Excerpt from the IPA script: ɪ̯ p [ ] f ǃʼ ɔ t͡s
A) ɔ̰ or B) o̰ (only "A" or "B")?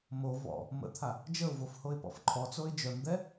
A